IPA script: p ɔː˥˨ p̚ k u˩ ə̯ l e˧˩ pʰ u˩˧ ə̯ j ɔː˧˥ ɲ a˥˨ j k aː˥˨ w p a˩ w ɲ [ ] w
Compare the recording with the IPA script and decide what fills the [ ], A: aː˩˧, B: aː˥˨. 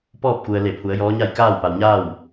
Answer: B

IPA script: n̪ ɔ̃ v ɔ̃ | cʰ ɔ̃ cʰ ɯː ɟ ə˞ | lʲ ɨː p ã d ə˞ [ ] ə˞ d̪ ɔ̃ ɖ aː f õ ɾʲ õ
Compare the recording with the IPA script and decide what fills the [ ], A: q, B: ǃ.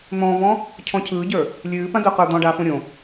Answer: A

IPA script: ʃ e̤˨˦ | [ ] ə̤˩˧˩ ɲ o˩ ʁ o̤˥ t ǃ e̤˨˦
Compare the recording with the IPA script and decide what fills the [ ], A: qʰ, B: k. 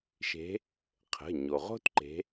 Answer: A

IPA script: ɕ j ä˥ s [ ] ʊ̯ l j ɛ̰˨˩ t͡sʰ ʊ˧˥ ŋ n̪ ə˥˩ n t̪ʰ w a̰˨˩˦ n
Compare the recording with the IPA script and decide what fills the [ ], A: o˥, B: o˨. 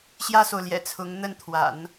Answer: B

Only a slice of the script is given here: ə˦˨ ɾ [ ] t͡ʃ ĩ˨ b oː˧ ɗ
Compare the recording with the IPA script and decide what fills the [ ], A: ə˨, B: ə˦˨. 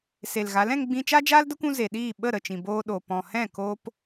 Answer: B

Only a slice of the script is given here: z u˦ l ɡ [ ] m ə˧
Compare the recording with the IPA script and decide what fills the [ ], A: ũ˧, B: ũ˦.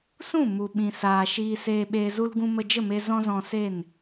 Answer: A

